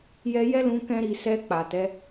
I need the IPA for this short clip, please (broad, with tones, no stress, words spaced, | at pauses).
jɛ˧jɛ˦lũ˧ kɛ̃˦ɾi˧ sɛ˧ k͡pa˨tɛ˨˦